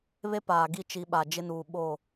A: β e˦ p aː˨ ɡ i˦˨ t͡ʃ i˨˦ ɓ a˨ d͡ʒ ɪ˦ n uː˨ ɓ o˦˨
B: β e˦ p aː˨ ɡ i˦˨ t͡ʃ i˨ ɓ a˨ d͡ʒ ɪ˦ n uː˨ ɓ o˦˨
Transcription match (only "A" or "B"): A